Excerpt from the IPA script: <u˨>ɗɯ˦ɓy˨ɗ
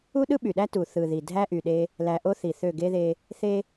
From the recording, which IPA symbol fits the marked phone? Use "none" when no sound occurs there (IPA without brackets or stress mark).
u˦